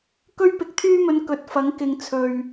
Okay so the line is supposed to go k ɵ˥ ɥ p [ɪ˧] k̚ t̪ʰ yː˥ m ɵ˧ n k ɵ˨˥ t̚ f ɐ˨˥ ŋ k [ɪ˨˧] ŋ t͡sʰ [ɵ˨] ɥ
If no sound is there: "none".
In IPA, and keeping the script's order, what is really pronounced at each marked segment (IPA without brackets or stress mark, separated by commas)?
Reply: ɪ˧, ɪ˨˧, ɵ˨